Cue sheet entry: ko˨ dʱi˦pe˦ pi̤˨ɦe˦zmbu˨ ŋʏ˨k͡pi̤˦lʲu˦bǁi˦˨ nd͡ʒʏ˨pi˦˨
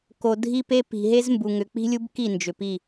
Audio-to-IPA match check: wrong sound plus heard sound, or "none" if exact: ǁ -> k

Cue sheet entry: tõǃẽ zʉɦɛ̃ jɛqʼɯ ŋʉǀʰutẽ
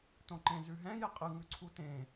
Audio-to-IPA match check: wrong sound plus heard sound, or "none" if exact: none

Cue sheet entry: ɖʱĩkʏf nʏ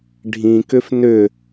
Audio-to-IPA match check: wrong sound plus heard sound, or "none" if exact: none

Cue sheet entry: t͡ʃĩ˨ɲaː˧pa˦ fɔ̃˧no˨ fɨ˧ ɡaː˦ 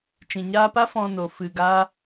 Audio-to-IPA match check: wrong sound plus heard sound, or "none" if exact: none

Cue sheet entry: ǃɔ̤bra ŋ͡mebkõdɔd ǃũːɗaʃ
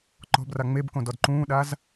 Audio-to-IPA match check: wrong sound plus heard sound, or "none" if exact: ʃ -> z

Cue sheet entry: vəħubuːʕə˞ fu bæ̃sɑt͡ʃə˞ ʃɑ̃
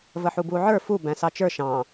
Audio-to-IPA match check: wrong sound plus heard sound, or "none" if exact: none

